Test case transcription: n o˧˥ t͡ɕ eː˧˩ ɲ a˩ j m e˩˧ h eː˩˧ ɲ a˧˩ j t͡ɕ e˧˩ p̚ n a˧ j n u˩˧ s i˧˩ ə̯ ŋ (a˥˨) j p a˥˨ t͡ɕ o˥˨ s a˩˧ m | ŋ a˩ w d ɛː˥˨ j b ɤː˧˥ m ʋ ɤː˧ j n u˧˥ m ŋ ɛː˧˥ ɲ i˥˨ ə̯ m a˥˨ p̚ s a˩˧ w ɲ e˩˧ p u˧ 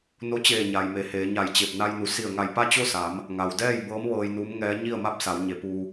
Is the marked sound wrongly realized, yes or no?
yes